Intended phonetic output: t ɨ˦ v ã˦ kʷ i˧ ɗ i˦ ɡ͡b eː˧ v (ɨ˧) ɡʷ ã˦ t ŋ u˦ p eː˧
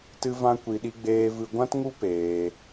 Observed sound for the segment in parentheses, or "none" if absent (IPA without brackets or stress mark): ɨ˧